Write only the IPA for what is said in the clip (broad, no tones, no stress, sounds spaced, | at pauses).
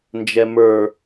n d͡ʒ ɛ m ə˞